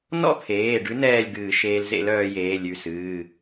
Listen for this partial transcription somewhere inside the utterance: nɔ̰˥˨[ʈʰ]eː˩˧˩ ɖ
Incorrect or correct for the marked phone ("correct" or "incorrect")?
incorrect